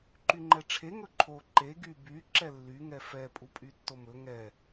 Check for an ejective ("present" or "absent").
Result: present